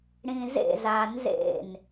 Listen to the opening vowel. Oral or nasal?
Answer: nasal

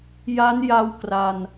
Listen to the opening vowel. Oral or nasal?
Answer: oral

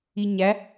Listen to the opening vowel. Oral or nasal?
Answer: oral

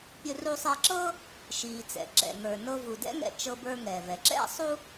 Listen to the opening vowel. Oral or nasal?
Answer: oral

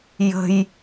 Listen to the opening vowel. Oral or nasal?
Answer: oral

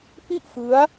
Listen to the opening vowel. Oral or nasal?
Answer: oral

